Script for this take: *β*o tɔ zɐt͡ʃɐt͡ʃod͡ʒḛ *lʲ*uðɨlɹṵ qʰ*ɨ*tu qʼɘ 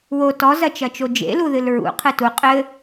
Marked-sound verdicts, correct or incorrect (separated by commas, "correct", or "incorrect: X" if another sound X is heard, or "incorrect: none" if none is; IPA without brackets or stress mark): incorrect: w, incorrect: l, correct